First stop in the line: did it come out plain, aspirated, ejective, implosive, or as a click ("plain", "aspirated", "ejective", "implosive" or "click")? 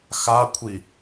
aspirated